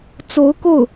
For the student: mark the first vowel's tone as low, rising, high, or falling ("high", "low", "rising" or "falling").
rising